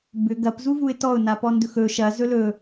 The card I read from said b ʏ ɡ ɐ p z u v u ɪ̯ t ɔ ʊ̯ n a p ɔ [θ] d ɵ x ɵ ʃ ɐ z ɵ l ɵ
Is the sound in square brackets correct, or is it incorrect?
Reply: incorrect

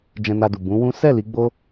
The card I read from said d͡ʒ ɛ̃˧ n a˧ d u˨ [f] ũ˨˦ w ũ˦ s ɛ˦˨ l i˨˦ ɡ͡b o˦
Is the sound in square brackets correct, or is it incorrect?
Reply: incorrect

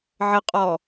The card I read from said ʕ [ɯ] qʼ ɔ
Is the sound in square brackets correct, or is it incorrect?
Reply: incorrect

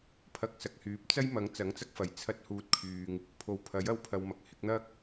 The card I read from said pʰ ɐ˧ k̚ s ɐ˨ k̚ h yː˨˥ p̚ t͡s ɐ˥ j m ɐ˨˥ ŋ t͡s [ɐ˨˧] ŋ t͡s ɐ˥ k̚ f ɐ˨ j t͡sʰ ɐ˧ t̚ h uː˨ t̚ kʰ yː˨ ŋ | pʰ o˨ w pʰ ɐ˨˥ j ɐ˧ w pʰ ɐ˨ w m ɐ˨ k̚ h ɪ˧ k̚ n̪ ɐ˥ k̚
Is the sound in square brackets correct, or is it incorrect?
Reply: incorrect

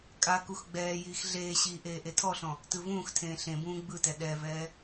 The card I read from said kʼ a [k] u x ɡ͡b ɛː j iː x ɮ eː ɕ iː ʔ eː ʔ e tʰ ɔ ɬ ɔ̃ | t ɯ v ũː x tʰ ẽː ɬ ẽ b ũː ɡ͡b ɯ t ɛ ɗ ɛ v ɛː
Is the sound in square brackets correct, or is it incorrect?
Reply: correct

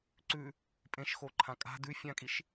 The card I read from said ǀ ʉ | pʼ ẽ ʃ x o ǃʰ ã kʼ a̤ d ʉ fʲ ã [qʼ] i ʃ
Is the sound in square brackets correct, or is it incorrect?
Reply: incorrect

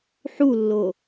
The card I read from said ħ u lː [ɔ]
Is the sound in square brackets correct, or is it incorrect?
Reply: incorrect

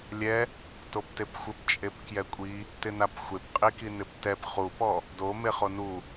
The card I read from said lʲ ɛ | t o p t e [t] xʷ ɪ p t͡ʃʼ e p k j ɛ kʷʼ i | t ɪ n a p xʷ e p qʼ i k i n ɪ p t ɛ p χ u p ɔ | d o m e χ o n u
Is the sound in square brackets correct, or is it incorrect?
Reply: incorrect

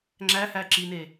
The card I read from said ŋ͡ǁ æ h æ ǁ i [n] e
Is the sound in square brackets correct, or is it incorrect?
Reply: correct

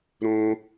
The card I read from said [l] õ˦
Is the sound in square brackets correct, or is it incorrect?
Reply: incorrect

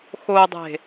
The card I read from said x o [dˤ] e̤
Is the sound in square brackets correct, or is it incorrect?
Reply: correct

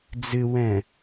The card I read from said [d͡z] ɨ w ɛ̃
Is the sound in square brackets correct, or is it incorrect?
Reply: correct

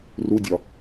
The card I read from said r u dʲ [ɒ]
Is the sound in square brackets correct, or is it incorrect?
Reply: correct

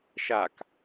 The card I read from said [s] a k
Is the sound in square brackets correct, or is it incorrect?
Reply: incorrect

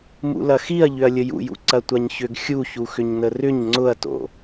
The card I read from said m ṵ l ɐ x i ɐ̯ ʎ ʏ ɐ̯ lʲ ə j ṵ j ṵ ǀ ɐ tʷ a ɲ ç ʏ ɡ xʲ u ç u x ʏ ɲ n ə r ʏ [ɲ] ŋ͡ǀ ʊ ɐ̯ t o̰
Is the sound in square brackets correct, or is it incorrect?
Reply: correct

